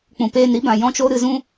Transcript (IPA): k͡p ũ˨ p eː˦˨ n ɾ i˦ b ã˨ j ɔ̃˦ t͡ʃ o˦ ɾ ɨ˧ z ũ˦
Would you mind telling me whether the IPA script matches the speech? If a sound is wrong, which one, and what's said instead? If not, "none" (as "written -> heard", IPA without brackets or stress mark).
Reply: none